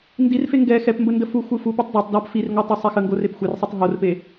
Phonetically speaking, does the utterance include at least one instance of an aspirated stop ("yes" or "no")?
no